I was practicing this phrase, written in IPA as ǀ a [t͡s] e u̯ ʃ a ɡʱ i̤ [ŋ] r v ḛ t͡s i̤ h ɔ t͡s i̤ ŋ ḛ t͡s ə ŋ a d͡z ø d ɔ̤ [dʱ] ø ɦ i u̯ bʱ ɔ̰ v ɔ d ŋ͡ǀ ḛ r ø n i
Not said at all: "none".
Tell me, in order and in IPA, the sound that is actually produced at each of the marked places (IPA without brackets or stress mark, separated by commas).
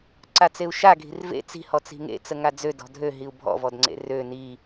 t͡s, none, dʱ